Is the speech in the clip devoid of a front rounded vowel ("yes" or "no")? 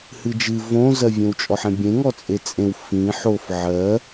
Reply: yes